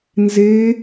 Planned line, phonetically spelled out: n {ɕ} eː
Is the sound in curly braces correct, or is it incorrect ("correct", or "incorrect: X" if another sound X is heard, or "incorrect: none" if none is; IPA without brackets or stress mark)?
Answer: incorrect: z